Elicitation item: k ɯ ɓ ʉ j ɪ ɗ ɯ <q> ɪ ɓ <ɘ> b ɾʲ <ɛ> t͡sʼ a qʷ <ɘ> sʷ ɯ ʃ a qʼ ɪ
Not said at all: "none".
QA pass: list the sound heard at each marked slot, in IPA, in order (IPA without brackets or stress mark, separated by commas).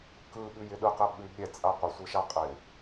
q, ʉ, ɛ, ɘ